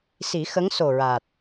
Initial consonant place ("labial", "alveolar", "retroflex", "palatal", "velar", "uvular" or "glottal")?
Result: alveolar